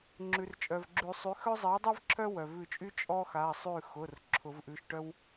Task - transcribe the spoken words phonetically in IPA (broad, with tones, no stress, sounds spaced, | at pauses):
ŋ͡ǁ ʉ˩ r t͡ʃʼ œ˩ v ɡ͡ǁ ʉ˨˩˦ sˤ y˩˥ x œ˥ zˤ i˩˥ ɐ̯ dˤ i˥ v ǁʰ œ˥ w œ˩ v ʉ˧˩ t͡ʃʼ y˥ t͡ʃʼ ɔ˥ x a˩˧˩ sˤ ʉ˧˩ x ʊ˩˧˩ r ǁʰ ʊ˨˩˦ v ʔ ʉ˩˧˩ ʃ ʈ œ˥ w